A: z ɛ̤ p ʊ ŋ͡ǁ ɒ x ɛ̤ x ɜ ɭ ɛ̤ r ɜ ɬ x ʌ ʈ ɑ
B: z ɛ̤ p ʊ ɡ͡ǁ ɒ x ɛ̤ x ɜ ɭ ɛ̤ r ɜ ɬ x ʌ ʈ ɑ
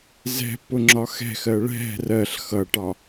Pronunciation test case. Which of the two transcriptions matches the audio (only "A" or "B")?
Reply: A